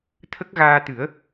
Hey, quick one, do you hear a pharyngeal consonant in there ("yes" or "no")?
no